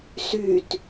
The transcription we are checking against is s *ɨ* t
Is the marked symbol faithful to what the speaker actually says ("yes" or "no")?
no